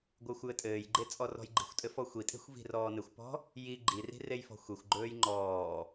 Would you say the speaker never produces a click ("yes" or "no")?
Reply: no